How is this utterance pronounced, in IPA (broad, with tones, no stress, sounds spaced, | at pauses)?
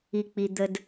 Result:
i˨ k͡p i˨ d̪ ə˨ d